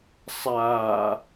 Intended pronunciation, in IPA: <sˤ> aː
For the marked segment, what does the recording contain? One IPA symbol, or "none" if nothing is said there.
sˤ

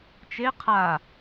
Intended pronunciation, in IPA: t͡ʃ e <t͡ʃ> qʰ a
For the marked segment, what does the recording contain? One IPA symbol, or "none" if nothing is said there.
none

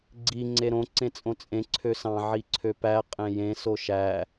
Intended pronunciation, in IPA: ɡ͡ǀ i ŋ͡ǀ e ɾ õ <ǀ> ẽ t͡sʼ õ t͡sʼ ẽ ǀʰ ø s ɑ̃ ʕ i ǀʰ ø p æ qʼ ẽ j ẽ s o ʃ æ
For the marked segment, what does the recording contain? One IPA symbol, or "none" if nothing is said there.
ǀ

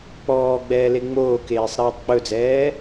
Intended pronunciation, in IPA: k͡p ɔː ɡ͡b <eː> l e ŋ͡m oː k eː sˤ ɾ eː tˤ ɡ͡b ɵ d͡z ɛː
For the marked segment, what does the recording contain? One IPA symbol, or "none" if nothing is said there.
ɛː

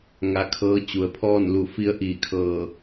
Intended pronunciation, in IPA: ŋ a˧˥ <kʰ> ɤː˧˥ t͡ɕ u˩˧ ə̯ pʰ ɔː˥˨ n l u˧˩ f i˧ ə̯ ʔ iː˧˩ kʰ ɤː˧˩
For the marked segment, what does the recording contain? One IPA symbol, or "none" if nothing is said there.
kʰ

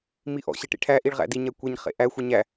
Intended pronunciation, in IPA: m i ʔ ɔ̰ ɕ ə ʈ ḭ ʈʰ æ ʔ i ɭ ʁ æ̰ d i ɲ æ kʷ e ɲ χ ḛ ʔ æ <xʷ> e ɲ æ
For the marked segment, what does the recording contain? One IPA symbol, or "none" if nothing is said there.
xʷ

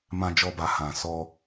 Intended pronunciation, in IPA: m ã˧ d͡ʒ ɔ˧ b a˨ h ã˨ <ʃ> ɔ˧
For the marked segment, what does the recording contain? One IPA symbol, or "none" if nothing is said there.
s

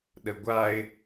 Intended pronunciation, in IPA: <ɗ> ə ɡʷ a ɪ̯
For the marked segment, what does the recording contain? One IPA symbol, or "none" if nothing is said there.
ɗ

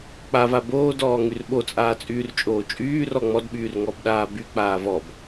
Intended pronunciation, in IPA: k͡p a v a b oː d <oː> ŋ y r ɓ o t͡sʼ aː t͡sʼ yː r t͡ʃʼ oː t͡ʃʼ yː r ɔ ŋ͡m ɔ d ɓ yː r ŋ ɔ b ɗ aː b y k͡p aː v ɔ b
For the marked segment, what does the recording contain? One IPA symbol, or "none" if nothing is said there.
ɔː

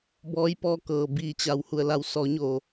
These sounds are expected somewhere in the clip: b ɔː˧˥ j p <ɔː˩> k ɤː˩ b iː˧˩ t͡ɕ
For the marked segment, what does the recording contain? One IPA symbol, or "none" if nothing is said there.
ɔː˧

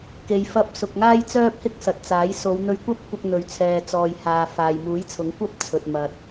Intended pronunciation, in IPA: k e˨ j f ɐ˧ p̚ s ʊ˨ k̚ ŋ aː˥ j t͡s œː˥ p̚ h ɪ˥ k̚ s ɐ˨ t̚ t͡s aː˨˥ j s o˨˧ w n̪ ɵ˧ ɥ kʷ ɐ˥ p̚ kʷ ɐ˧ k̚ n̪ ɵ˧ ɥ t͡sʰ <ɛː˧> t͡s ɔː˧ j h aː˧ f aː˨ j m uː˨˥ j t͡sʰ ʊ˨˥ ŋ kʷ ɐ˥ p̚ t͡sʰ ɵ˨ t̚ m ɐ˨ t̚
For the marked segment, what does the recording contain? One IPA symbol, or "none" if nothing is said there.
ɛː˧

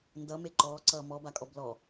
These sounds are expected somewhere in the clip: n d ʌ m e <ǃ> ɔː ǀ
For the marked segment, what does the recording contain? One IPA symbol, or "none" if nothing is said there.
ǃ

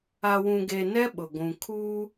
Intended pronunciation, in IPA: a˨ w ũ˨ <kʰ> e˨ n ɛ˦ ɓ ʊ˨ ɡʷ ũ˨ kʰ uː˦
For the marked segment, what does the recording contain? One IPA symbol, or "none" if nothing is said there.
ɡ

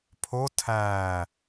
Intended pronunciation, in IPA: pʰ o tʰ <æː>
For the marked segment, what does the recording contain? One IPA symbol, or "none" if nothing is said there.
æː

